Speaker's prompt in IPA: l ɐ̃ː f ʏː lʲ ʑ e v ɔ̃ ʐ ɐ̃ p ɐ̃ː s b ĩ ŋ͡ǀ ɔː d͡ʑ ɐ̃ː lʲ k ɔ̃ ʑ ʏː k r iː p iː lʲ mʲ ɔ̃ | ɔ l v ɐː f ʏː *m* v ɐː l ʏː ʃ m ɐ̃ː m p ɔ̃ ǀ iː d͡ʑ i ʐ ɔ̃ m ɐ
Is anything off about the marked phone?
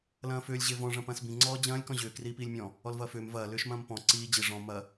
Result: no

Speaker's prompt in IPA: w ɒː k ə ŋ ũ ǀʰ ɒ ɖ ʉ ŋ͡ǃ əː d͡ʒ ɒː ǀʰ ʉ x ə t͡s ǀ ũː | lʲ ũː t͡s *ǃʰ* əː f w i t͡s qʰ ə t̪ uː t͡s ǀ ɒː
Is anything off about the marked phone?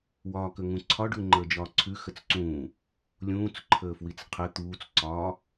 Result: no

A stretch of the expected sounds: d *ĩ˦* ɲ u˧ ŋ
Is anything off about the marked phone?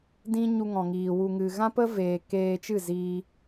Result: no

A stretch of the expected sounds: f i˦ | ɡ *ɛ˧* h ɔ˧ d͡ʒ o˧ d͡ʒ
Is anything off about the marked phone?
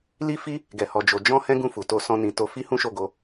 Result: no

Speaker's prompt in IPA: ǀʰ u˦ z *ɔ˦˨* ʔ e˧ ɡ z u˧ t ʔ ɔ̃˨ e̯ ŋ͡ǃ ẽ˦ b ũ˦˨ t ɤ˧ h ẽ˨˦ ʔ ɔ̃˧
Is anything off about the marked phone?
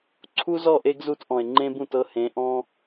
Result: no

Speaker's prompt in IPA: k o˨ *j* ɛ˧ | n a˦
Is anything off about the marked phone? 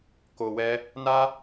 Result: yes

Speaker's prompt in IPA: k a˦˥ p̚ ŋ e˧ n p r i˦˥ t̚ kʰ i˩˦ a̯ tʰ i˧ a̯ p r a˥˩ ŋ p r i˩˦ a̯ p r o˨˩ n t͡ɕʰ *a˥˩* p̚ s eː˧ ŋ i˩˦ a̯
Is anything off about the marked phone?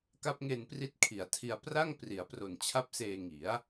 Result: no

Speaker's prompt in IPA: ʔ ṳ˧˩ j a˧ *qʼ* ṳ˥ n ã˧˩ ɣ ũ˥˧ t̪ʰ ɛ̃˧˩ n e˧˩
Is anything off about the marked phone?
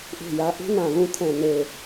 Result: yes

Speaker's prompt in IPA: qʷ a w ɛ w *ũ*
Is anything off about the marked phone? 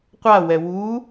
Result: yes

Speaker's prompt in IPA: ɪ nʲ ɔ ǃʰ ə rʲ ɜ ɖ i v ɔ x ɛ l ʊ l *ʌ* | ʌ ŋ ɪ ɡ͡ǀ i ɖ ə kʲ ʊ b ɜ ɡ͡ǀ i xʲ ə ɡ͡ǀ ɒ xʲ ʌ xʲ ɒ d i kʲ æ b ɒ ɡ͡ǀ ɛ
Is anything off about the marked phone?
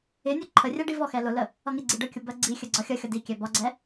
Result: yes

